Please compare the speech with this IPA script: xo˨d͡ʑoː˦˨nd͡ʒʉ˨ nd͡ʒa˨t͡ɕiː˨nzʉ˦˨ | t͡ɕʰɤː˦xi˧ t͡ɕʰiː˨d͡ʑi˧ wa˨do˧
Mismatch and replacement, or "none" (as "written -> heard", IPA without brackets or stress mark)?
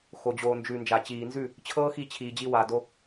oː˦˨ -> oː˨